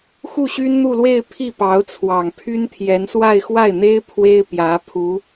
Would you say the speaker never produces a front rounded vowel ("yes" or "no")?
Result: no